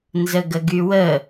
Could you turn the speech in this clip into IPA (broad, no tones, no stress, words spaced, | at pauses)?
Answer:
nzəɡəɡywə